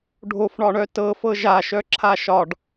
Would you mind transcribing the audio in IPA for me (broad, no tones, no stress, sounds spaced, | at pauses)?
ɖʱ o f ɳ ɒ ɳ œ t ɤ f ɤ ʒ a ʃ œ ǁʰ a ʃ ɒ ɖ